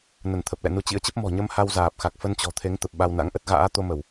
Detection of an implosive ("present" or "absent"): present